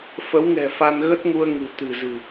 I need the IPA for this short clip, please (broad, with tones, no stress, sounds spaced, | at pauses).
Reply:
f ə˨˦ w ŋ ɛ̤˨˩ f a˧ n ɣ ə˦˥ t̚ ŋ u˧ ə̯ ŋ ɨ̤˨˩ t̪ ɨ̤˨˩ z ɨ̤˨˩